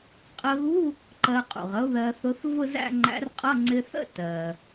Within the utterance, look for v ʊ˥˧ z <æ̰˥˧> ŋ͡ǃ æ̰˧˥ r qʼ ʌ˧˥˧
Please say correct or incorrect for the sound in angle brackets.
correct